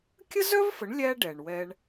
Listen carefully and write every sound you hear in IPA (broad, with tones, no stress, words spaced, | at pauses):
kʲə˥zœ˥vfə˩˥ɳ lʲæ˧ ɖɛ˩ɳwɛ˧ɳ